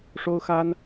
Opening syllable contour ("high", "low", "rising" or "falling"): high